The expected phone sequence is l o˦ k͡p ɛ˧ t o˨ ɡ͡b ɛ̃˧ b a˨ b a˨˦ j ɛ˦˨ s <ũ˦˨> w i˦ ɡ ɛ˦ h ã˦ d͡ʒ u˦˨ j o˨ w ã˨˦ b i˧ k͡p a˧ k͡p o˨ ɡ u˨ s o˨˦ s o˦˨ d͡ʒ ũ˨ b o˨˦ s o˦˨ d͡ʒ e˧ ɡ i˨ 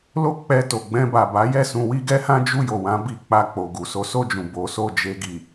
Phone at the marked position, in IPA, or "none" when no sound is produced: ũ˧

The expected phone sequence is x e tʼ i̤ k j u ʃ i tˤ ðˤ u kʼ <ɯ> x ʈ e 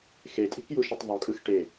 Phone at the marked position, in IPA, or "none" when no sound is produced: ɯ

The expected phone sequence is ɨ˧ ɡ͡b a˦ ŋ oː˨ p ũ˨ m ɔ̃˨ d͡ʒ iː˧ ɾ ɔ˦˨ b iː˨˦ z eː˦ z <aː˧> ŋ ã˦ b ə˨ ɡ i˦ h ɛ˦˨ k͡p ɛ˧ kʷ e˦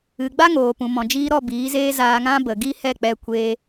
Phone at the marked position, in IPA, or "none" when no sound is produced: aː˧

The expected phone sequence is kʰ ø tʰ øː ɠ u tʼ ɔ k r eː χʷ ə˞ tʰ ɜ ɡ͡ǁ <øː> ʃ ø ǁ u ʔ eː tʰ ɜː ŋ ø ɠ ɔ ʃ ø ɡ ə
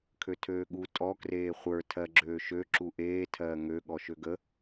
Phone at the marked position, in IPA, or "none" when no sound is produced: øː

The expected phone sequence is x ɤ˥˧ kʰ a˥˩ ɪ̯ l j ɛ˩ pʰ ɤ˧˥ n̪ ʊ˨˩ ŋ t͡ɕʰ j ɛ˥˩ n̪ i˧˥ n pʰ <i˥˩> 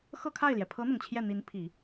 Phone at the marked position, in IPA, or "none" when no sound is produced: i˨˩˦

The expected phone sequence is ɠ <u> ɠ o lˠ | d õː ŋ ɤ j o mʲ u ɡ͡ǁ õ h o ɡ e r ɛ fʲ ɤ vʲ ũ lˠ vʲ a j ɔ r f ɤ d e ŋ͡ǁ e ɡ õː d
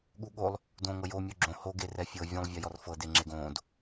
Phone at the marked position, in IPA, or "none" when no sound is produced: u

